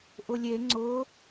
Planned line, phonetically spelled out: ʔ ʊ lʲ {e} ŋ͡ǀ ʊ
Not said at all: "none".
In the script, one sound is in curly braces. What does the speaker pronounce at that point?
e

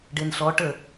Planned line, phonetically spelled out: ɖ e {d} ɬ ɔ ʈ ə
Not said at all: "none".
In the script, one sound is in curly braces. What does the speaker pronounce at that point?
n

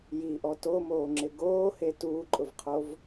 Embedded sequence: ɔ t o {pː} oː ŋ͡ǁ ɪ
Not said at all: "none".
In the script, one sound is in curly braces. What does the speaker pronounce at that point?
m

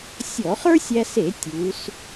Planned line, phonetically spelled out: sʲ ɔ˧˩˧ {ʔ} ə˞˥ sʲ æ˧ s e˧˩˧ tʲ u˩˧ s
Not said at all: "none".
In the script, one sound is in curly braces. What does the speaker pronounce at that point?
χ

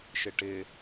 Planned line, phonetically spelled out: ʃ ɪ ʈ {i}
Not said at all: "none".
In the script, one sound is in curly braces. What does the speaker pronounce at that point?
ɪ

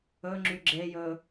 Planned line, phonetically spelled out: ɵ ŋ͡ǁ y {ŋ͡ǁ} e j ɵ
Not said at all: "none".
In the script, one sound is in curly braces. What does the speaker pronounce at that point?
ɡ͡ǁ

